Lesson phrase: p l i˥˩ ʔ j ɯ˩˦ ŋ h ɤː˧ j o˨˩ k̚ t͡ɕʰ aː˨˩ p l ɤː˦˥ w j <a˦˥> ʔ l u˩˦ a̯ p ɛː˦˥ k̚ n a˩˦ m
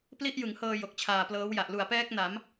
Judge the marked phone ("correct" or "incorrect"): incorrect